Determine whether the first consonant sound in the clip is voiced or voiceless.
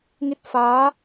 voiced